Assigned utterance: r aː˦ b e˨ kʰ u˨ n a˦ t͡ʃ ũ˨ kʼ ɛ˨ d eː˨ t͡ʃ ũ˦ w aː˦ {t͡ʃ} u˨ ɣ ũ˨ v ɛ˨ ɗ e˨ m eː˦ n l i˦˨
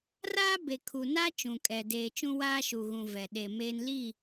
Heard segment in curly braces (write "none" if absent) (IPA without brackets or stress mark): ʃ